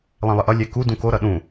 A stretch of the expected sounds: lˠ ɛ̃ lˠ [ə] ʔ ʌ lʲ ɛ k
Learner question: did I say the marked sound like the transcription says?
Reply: yes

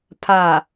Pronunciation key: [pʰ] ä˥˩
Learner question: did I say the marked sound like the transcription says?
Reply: yes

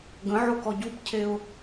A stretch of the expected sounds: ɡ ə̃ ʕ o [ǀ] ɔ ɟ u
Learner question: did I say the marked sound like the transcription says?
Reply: no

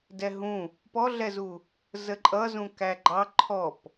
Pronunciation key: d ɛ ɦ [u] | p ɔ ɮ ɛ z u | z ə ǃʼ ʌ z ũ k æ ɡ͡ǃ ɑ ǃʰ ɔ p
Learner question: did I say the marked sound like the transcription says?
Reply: no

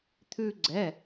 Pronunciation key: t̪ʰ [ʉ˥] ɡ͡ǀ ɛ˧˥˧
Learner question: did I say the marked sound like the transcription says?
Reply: yes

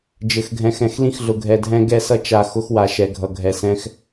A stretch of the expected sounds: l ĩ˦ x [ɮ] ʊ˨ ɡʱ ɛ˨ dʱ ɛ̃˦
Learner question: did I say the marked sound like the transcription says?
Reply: yes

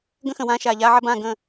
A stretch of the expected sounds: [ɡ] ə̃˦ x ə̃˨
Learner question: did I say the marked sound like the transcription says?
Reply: yes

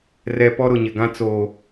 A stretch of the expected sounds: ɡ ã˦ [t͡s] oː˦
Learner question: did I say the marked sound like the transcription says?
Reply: yes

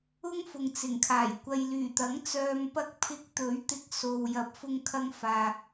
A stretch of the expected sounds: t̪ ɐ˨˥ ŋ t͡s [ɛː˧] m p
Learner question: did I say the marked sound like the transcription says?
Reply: no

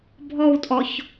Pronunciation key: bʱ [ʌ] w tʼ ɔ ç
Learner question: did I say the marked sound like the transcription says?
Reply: no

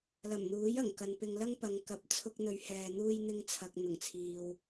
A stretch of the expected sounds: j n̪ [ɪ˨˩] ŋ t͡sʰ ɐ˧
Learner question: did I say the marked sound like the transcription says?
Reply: no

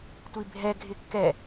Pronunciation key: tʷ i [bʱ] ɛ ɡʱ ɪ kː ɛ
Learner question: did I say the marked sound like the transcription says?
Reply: yes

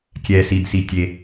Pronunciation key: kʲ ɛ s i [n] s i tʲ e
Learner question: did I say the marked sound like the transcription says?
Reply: no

